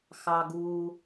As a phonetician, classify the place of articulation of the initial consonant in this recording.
velar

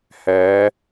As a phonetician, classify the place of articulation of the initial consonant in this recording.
glottal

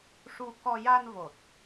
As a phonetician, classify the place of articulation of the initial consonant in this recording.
retroflex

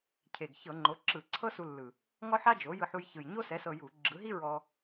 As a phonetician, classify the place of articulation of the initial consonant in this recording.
palatal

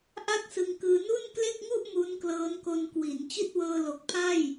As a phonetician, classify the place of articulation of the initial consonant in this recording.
glottal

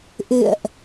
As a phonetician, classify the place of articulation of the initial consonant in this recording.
glottal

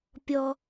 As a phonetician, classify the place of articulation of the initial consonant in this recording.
labial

